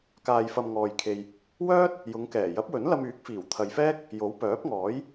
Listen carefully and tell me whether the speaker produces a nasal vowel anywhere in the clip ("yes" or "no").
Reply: no